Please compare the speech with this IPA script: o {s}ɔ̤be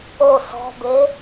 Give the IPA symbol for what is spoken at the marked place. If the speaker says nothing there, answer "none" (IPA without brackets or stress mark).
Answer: s